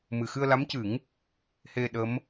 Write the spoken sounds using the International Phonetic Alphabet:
m ɨ˨˩ x ɨ˧ ə̯ l a˧˥ m c ɨ˨˩˦ ŋ | h e˧ ɗ ə˧˥ m

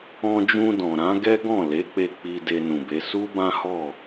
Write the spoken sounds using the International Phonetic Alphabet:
ɔ̃˧ d͡ʒ ũ˧ d ɔ̃˨ ɾ ã˨˦ ɡ ɛ˦ ɡ ɔ̃˦˨ l e˨˦ k͡p e˧ k͡p i˧ d e˧ n ũ˨ b e˨˦ s u˦ b ã˦ h ɔ˦˨

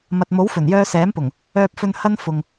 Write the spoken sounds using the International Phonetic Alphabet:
m ɐ˨ t̚ m o˨˥ w f ɵ˨˩ n j œː˧ s ɛː˨˥ m p ʊ˨˩ ŋ | œː˨ p̚ f ɵ˨ n h ɐ˧ n f ʊ˨ ŋ

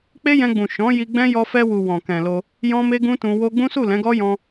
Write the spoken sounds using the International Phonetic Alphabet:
k͡p e˦ j ɛ̃˧ ɡ͡b ũ˨ ʃ ɔ̃˨˦ j i˧ ɡ͡b ɛ̃˦ j ɔ˧ f ɛ˧ w u˨ w ɔ̃˨ k ɛ̃˨ l o˧ | j ɔ̃˦ m e˦ ɡ ũ˦ t ũ˧ w o˦ ɡ͡b ũ˦ s u˦˨ l ɛ̃˨˦ ɡ ɔ˦ j ɔ̃˧

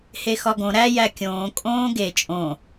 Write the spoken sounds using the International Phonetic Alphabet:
h e x ɒ ɡ õ ɾ æ j æ kʲ õː kʼ õː ɡ e t͡ʃʼ õ

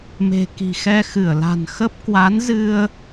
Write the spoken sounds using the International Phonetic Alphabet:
m e̤˨˩ k i̤˨˩ x ɛ˧ x ɨ˧˩ ə̯ l a̤˨˩ n x ə˦˥ p̚ k w a˨˦ n z ɨ˧ ə̯

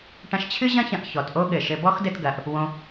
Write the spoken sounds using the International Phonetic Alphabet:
ʈ ɐ̃˧ ʃ t͡ɕʰ ɨ˥ ʑ ɐ̃˥ ç ɐ̃˧ ʔ ç ɔ˩ t ʔ o˥ ɠ ɘ˩ ʃ ɘ˧ b ɔ˥ x d ɘ˧ t ɡ ɐ˩ ʔ | w õ˧

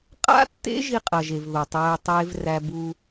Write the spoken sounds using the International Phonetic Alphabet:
qʼ a̰˦ tː ḛ˦ ʒ i˦ qʼ ɐ˨ ʒ e˨ v ð o˨ tˤ æː˦ tˤ eː˦ v r æ˦ b u˦

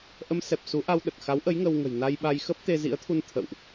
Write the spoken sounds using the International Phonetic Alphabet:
ʔ ə˧ m s ɛ˨˩ p̚ s u˨˦ ʔ a˧ w ɗ ə˨˩ t̚ x a˨˦ w ʔ ə˨˦ j ŋ əː˧ w ŋ ə̤˨˩ j n a˧ j ɓ a˧ j x əː˦˥ p̚ t̪ e˧ z ḭ˧˥ ə̯ t̪ʰ u˧ n t̪ʰ ə̰˧˨ w ʔ

